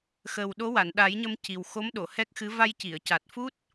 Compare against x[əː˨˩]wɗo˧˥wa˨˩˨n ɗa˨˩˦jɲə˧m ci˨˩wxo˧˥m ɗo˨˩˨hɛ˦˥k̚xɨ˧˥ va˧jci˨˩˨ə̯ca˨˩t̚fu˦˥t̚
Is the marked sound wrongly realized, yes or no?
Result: no